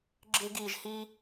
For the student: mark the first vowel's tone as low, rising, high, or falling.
high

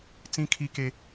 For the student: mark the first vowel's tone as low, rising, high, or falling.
high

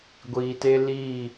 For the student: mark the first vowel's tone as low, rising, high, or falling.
low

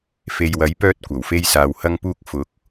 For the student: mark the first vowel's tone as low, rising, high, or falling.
low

